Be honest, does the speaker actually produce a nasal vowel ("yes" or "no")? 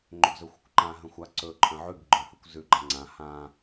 yes